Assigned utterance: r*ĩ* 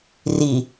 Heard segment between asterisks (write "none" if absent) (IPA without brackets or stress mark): i